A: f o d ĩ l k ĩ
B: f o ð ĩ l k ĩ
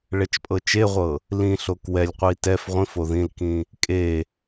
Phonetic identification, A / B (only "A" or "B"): B